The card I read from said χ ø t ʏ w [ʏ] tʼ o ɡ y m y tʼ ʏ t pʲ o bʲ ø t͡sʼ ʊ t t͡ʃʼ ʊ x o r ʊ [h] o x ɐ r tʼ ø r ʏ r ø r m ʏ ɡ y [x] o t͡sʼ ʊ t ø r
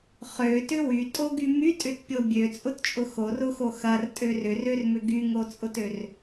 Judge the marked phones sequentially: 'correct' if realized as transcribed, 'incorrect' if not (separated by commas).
incorrect, incorrect, incorrect